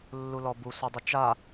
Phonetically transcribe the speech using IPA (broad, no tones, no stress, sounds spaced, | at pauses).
lː u l ɔ b u sʷ ɘ dˤ ɪ t͡ʃ a